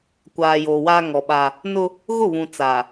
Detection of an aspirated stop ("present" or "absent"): absent